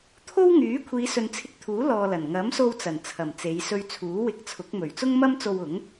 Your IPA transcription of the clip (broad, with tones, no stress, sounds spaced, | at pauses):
t̪ʰ o˥ w ŋ yː˨˥ kʷʰ iː˨˧ s ɵ˨ n t͡sʰ ɪ˧ k̚ t̪ʰ uː˨˥ l ɔː˧ l ɐ˨˩ n ŋ ɐ˨˥ m s o˧ w t͡s ɐ˨˩ n t͡sʰ ɐ˨˩ m t͡s e˨˧ j s ɵ˧ ɥ t͡sʰ uː˨˥ w ɪ˧ k̚ t͡sʰ ʊ˨˥ k̚ m ɵ˨˩ ɥ t͡s ʊ˥ ŋ m ɐ˥ m t͡s o˧ w ʊ˨˥ ŋ